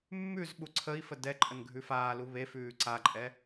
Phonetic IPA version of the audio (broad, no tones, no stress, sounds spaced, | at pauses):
mː ʉ z ɓ u ǀʰ ə i̯ f ə d ɛ ǃʼ ə n ɡʱ ʉ f aː l u β e f ʉː ǀ a ǃʼ ɛ